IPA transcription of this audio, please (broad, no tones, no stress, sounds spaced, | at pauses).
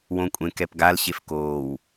w õ kʷʼ ẽ k ɛ p ɡ a l ɕ e f k oː w